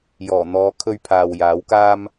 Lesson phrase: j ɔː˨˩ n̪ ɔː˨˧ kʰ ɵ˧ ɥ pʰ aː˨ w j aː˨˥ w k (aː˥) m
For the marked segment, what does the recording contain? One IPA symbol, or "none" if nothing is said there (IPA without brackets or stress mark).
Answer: aː˥